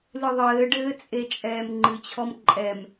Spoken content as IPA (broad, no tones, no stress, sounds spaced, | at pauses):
l ɨ ðˤ ɘː ɖ ɘː t͡sʼ e t͡ʃʼ ɛː m ŋ͡ǃ ɨ t͡ɕʰ ɔ m ǃʼ ɛ m